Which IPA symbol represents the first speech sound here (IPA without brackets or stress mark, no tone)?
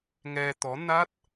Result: ŋ